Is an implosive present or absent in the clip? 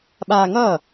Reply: present